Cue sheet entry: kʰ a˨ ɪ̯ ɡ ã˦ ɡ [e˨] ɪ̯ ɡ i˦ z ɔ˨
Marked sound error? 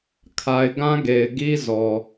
no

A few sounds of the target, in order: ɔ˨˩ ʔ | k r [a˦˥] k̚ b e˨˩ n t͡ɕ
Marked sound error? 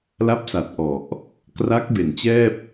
no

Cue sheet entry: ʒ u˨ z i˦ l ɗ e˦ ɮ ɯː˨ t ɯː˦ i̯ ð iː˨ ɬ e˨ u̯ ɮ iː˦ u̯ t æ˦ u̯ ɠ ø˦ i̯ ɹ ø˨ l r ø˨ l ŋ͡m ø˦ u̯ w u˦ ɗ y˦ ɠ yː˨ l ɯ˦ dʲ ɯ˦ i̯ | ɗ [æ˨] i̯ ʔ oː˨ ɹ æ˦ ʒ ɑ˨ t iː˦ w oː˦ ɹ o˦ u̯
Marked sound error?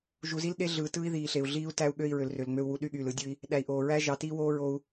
no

